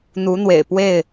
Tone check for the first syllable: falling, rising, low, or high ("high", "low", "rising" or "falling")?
rising